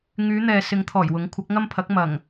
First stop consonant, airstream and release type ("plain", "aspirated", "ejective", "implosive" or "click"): aspirated